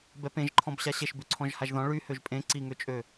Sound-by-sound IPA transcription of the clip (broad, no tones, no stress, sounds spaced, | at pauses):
b ɛ p ẽ ʒ ǃʰ ɔ̃ b ɕ a ɕ e ʃ b ʉ ǀʰ ɔ̃ ʒ h a ʒ ð ɔ̃ ɭ y h ø ʒ pʼ ẽ ǀ i ŋ ø t͡ʃʼ ø